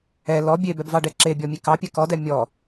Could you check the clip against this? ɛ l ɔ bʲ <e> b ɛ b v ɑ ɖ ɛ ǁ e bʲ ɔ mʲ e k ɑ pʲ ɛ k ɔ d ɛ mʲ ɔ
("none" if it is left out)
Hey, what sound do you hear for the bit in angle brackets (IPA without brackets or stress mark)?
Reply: e